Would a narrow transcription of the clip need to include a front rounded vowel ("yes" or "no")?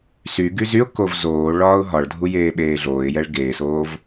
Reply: yes